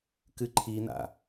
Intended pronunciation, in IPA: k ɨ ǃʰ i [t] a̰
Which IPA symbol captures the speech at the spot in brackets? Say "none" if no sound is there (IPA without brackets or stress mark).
n